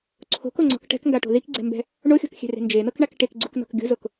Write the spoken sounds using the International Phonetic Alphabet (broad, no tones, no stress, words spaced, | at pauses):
ǀʰo̤koŋ͡ǀɔ̤k ʈɛ̤kŋɡaʈo̤ ðikɡ͡ǀɛ̤mbɛ̤ | ɳoxʲɔ̤kxʲɛ̤re̤ nd͡ʒen̪ɤkɳak ʈekɡ͡ǀuknɔ̤k ɡʲo̤zok